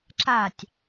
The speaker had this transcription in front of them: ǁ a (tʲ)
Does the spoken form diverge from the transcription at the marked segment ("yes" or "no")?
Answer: no